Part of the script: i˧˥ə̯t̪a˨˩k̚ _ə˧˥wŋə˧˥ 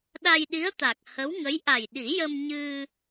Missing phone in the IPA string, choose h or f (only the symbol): h